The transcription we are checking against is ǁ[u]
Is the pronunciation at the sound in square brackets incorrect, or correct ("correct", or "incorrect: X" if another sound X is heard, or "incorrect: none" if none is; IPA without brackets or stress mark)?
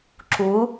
correct